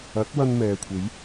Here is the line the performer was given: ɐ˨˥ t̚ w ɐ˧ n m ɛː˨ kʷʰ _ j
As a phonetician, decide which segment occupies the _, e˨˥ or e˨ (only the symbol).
e˨˥